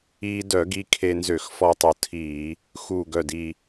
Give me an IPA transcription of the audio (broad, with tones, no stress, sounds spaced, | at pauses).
iː˧ d œ˧˩˧ ɡ i˧ kʰ e˧ n z ø˧˩˧ x f ɔ˧ tˤ u˨˩ tʰ iː˧˩˧ | x u˨˩ ɡ œ˨˩ d i˨˩